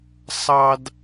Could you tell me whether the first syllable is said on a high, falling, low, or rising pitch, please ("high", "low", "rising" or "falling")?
high